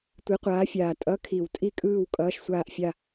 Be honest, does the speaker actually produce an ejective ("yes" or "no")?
yes